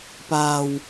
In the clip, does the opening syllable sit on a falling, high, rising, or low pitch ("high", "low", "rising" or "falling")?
low